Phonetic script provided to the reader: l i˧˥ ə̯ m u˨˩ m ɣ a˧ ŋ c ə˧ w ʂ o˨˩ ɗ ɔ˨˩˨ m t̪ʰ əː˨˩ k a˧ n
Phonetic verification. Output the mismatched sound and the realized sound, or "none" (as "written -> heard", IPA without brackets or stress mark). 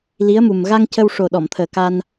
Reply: none